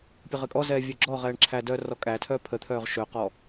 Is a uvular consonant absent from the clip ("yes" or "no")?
no